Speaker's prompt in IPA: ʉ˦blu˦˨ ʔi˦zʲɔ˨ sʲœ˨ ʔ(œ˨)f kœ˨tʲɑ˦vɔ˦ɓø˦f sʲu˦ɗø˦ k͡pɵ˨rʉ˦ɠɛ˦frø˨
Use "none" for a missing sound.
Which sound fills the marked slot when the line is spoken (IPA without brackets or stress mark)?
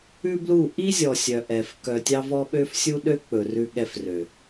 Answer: ɛ˨